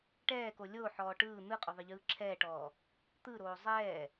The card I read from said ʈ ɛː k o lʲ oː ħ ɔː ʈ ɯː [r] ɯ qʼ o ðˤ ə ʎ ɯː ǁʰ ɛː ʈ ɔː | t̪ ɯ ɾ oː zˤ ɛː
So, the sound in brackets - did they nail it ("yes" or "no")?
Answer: no